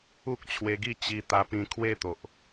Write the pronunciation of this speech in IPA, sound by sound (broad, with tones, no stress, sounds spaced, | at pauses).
u˦ k̚ t͡ɕʰ w e˧ ɡ i˥˧ t͡ɕ i˧ t̪ a˧ p ĩ˧ kʰ w e˦ t̪ o˨ ʔ